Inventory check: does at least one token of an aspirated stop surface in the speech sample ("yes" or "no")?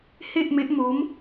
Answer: no